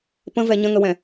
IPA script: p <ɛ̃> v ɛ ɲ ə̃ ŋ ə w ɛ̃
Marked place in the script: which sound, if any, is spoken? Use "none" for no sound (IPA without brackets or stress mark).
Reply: ə̃